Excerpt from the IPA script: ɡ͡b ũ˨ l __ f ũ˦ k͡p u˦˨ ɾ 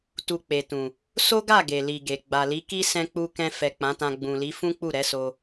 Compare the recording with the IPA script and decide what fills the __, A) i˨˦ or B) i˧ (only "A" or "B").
A